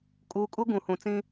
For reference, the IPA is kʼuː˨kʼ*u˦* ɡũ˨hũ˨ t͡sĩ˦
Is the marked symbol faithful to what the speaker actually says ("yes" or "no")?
yes